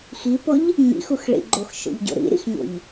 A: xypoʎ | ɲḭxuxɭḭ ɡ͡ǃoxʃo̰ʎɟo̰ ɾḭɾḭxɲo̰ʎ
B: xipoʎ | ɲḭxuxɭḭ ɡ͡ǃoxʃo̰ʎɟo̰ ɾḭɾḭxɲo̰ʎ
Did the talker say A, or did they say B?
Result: B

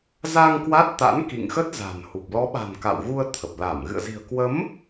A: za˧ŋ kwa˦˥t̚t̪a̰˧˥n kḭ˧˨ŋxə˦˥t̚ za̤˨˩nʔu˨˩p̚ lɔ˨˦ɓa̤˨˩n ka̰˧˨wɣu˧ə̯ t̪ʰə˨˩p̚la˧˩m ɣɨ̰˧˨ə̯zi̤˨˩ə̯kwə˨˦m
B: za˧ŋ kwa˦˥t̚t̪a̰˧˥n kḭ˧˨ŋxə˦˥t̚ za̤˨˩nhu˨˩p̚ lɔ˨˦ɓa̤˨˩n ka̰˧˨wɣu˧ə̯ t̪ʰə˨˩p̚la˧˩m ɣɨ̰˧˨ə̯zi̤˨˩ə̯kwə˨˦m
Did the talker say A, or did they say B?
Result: B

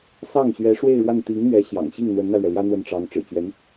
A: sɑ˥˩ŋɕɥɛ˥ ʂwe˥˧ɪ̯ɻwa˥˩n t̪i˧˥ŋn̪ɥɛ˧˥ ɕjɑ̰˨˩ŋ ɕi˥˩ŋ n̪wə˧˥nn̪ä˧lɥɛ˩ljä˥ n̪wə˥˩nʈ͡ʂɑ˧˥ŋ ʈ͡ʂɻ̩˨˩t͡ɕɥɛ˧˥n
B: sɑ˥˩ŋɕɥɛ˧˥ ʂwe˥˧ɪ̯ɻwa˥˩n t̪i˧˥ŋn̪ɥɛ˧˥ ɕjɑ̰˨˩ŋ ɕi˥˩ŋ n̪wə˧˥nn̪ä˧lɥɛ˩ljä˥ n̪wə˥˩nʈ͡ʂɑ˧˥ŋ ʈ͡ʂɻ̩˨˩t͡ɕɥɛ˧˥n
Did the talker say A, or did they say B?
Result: B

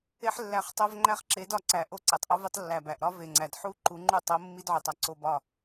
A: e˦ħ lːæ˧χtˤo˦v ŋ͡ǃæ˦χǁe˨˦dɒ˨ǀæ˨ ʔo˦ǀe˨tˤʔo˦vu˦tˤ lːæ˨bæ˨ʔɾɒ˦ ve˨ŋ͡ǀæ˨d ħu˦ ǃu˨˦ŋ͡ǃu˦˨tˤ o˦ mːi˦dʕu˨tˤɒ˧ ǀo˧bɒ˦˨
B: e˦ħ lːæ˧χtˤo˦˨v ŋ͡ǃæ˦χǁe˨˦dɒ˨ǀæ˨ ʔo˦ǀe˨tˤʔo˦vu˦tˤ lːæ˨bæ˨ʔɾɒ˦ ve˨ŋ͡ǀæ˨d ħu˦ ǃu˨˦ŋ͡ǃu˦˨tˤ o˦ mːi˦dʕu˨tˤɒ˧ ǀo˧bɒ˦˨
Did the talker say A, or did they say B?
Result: A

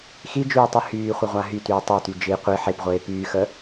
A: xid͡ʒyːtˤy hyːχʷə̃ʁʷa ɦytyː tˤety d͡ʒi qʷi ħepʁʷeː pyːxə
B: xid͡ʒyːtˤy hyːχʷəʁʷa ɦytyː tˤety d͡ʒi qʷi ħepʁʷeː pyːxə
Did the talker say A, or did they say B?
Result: B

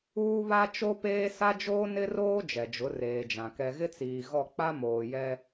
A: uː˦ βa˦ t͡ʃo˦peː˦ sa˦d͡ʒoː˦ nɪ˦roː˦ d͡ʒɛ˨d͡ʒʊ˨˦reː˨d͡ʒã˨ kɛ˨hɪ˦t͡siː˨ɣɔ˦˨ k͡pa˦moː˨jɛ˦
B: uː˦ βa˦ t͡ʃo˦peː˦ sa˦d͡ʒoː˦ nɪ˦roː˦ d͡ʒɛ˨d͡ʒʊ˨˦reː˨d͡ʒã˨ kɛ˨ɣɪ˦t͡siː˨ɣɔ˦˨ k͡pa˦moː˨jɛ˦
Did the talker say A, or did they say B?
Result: B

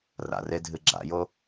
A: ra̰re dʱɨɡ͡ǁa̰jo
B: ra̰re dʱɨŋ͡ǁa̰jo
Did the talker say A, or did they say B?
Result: A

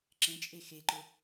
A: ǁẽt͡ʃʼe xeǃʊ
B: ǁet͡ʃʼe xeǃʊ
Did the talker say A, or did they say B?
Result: A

